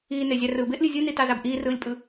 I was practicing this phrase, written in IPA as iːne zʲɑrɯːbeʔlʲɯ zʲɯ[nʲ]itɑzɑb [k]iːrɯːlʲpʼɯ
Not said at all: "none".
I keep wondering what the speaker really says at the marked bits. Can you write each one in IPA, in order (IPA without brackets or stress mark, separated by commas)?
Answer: n, ʔ